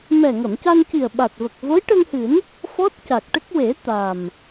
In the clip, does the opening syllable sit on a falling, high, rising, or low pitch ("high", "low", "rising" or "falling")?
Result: low